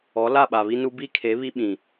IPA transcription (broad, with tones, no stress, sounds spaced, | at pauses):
ɔ˨˦ l a˦˨ ɓ a˨ β i˦ n u˦ b i˦ kʰ e˨˦ β i˦ ɓ ĩ˨